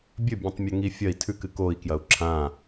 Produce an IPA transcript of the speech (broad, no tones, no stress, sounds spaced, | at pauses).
bʲ ɵ bʲ ẽ tˤ mʲ ɐ ŋ i fʲ ɐ i̯ tʰ ʉ k ɨ k o i̯ k j ɐ u̯ ǁʰ ã